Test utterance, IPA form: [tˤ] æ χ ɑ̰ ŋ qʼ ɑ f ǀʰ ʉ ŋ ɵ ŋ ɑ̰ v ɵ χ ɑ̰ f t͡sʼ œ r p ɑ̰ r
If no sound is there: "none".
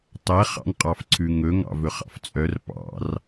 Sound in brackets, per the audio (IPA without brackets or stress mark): tˤ